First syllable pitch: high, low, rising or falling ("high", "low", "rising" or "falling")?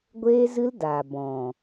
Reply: high